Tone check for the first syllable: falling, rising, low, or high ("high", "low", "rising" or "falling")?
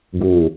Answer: low